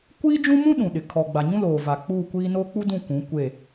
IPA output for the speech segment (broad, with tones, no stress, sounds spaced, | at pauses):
kʷ iː˦ d͡ʒ ũ˦ m ũ˦ ɗ ũ˨ ɗ ɪ˨ kʰ ɔ˨ ɡ͡b a˨ ɲ ũ˦ l oː˨ v a˨ k͡p uː˦˨ kʷ iː˦ n oː˦ k͡p u˦ d ũ˦˨ kʷ ũ˨˦ kʷ e˦˨